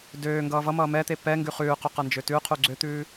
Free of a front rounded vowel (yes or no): no